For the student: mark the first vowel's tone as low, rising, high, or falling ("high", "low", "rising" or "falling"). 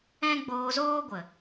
high